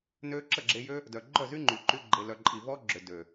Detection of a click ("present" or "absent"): present